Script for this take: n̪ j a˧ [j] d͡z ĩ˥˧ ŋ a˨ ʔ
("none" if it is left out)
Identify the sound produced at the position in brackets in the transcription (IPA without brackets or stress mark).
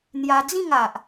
none